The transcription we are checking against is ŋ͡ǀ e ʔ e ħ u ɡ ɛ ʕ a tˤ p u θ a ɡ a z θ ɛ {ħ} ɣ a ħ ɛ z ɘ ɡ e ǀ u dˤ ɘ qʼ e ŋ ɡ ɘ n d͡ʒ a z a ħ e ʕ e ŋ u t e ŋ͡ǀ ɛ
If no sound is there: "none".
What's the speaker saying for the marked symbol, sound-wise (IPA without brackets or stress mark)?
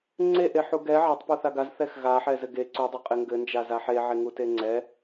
x